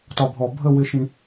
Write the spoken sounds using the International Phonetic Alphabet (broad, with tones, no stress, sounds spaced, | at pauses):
t ɒ˨ bʱ ɔ˨ bʱ ə˦˨ w ɪ˦ ʃ ĩ˦